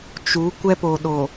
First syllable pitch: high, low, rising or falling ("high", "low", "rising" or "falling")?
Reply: rising